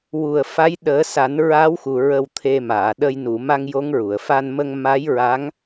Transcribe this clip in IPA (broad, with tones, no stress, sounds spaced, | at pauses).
w u˨˩ ə̯ f a˧˥ j ɗ əː˨˩˦ s a˨˩˦ n ɹ aː˧˥ w x u˨˩ ɹ ə˨˩ w t̪ʰ e˨˩ m aː˨˩˨ ɗ ə˧ j n u˨˩˨ m a˧ ŋ j o˧˥ ŋ ɹ u˨˩˨ ə̯ f a˧ n m ə˧ ŋ m a˧˥ j ɹ a˧˥ ŋ